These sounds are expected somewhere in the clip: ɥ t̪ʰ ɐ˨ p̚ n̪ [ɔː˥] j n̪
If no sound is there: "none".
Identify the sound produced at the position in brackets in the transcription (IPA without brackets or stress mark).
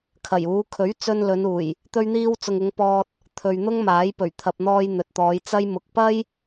ɔː˧